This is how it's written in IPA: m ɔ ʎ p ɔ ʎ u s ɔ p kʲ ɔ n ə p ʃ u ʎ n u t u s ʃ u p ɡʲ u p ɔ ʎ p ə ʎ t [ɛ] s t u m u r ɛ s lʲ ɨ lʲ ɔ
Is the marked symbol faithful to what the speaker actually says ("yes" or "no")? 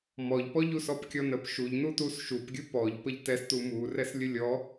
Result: yes